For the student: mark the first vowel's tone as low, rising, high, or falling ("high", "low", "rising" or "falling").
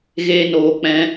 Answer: high